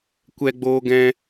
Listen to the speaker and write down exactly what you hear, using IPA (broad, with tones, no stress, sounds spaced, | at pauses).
kʷ ɛ˧ ɡ͡b oː˧ ɡ ɛ̃˧